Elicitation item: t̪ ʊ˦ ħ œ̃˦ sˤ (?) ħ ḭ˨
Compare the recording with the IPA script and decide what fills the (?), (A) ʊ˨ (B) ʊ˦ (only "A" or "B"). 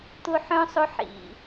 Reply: B